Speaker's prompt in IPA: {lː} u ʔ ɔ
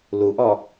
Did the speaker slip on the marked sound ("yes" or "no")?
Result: yes